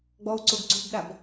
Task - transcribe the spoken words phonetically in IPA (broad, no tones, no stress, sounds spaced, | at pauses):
ɡ͡b ɔ u̯ ǀ o ɡ ǀ o̤ b ɗ a b